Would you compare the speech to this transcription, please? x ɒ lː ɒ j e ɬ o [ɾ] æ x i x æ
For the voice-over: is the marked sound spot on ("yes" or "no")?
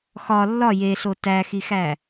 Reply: no